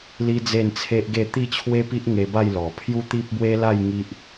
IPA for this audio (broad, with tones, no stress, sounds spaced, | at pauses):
l i˦ d͡z e˥˧ n t͡sʰ e˦ ʔ ɡ e˥˧ t̪ i˥˧ t͡ɕʰ w e˦ p i˦ ʔ ŋ e˧ b a˥˧ j l ɔ˨˩ pʰ j u˦ t̪ i˦ p̚ b w e˦ l a˥˧ j ŋ i˦ ʔ